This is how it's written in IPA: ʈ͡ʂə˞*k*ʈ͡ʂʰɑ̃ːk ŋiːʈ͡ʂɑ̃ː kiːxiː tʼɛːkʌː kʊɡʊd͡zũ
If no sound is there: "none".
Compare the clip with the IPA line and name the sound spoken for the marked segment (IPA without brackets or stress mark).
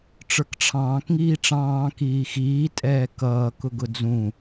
k